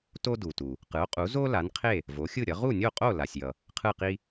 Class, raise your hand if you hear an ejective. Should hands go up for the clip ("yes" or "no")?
yes